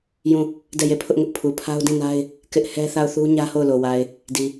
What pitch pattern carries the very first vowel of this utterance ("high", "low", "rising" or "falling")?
falling